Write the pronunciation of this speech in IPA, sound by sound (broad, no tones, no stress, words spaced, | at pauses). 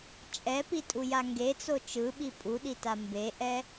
t͡ʃʼɛpitʼuja ŋɡet͡so t͡ʃɯɓi pʼuɗita mbeʔɛ